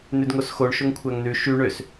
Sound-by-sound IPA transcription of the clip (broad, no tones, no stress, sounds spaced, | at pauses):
n ʉ d ŋ o s x o ɳ ʃ ɵ ŋ kʷʰ æ ŋ n ʉ ʃ y ɳ ø s